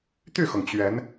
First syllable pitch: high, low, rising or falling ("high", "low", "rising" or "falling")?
falling